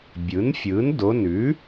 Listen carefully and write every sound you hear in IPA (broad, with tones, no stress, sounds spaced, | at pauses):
bʲ ɯ˩˥ n fʲ ɯ˩˥ n d o˩˧˩ n ʉ˩˥